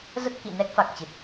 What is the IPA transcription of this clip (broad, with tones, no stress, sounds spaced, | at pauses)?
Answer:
z ə˦˥ t̚ k ḭ˧˨ n ɛ˦˥ k̚ f a˨˩ k̚ t͡ɕ ɨ˨˩ t̚